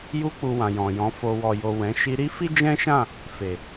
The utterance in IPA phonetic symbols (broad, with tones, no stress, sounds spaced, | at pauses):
j u˧ k͡p u˨ w ã˨ j ɔ̃˨ j ɔ̃˨˦ f o˧ w ɔ˨ j o˨ w ɛ̃˨˦ ʃ i˧ ɾ i˦ f i˦ d͡ʒ ɛ̃˦ ʃ ã˦˨ | f e˨